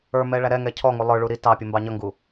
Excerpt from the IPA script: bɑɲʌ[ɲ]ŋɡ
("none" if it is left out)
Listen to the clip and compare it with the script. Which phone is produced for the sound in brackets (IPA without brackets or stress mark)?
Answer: none